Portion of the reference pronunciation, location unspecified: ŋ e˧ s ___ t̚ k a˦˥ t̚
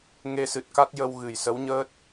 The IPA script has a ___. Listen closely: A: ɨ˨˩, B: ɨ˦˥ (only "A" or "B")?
A